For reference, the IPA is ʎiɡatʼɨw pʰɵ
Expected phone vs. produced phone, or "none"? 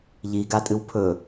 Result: none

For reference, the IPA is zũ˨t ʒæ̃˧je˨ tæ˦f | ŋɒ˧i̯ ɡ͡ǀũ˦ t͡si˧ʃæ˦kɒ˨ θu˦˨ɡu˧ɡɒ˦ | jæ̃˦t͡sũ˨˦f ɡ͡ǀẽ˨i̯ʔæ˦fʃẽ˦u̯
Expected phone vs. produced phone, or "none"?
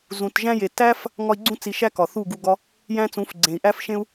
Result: none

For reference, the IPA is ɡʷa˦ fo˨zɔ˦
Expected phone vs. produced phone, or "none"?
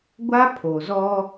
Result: f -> pʰ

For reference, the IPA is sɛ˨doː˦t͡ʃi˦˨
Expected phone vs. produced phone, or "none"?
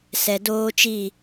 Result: none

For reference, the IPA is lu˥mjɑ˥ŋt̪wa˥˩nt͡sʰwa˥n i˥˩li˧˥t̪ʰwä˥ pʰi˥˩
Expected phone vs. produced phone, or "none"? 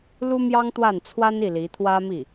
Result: pʰ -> m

